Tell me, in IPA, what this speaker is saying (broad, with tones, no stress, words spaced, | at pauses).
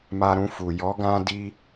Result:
ma˧ɾũ˧fu˨ jɔ˨˦ɡã˧ di˦